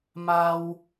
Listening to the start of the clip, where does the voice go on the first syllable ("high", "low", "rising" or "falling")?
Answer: high